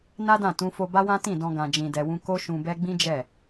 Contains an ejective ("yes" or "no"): no